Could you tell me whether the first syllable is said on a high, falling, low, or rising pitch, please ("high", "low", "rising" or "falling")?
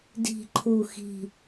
low